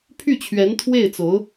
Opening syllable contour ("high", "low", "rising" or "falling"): falling